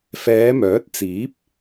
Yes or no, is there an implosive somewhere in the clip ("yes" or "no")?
no